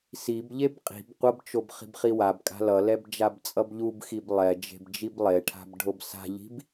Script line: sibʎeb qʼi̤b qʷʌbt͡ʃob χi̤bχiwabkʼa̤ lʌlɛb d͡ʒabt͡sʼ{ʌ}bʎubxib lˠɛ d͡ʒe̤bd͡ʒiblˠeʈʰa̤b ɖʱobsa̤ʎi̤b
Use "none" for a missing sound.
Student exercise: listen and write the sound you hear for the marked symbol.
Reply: ʌ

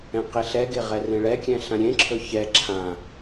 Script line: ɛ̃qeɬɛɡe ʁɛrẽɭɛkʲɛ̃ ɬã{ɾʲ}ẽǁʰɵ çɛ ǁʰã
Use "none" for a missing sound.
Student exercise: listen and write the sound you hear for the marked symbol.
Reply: ɾʲ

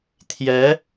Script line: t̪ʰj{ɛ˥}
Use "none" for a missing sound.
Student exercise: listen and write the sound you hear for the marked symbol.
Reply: ɛ˧˥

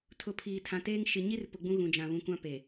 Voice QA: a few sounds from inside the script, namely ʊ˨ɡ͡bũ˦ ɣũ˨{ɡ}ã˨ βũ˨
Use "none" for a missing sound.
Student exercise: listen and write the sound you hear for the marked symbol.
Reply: d͡ʒ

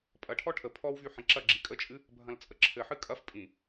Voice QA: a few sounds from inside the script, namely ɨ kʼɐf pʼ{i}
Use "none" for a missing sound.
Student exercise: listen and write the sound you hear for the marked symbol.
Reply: ĩ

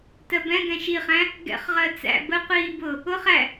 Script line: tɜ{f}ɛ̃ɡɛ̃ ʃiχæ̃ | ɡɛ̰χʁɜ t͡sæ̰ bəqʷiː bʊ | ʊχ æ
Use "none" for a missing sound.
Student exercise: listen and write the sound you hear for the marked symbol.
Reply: b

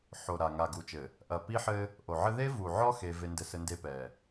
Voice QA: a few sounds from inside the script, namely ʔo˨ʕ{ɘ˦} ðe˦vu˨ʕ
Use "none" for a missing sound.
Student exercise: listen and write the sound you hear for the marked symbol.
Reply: ɘ˦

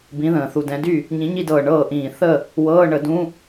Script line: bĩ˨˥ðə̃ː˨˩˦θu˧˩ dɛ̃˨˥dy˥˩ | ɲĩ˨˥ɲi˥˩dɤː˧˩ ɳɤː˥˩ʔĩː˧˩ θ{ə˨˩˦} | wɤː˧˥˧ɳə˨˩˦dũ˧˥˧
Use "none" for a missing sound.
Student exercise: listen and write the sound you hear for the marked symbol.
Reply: ə˥˩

